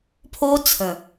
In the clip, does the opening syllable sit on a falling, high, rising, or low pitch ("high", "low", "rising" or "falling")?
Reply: high